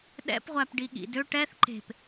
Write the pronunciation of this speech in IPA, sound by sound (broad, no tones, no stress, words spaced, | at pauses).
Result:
ɗɛ̰pʁʷæp ɖiɠḭdøʈ ɛθ ǃe̤p